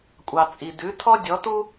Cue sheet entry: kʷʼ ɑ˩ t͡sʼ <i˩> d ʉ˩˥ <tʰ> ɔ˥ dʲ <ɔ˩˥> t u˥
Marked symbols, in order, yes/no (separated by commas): yes, yes, yes